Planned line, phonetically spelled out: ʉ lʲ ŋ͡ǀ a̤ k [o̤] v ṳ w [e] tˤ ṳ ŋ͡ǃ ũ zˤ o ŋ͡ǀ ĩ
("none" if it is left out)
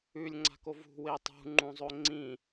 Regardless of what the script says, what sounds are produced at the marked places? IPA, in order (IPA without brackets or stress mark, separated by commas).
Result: o, e